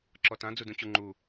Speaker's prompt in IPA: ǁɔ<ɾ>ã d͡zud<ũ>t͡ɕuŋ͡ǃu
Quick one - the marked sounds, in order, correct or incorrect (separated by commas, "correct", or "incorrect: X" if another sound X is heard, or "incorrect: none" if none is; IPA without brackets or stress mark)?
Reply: incorrect: t, correct